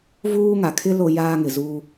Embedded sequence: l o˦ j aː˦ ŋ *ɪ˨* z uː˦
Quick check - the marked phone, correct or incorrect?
correct